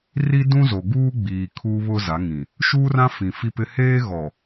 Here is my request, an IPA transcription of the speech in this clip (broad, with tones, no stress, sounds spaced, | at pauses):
r i˦ d ũ˦ z o˨ ɡ uː˦ ɡ͡b iː˨ kʰ uː˦ β ʊ˦ z a˨˦ ŋ ĩ˨ | ʃ uː˦ r ã˦ f ĩ˨ f i˦ p ɪ˦ h eː˦ ɣ ɔ˨